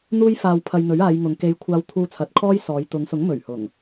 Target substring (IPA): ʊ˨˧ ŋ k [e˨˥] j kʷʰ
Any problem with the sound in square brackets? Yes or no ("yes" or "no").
yes